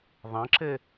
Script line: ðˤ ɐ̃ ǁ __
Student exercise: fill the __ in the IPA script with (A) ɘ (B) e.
A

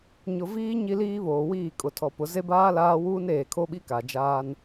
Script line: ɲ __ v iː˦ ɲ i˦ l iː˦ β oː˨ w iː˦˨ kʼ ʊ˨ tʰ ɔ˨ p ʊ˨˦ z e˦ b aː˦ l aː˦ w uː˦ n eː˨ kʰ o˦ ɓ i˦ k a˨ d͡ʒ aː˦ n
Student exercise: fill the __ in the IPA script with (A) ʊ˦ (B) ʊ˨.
B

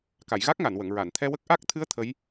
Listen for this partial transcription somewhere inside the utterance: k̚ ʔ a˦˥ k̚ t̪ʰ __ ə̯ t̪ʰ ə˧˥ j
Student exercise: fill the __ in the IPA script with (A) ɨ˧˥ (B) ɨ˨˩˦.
A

